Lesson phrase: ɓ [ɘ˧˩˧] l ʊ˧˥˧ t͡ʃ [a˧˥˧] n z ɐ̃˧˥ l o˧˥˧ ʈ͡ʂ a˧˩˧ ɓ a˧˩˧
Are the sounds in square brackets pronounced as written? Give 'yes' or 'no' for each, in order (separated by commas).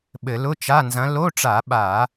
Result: yes, yes